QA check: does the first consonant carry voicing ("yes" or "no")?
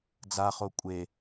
yes